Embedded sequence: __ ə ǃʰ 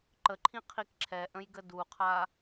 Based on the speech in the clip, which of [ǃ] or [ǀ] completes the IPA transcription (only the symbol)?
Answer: ǃ